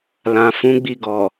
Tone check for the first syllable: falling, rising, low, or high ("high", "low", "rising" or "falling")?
low